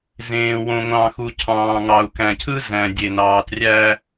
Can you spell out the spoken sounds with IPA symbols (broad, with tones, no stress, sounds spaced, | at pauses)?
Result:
z ẽː˨ w õ˨ ŋʷ ɑ̃˨ x u˨ cʰ ɑ̃ː˨ ŋ ɑ˨ u̯ k æ̃˨ cʰ ɯ˦ z æ̃˨ dʲ e˨ n ɑː˨ t rʲ æ˦